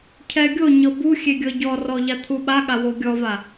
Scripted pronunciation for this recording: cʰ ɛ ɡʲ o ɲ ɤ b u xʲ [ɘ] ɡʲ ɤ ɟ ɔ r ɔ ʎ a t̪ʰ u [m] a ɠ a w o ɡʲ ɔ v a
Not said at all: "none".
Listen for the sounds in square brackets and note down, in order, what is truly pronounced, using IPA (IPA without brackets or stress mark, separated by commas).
e, ɓ